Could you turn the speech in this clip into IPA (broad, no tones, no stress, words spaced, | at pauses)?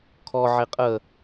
kʰɔ ʕeqʼə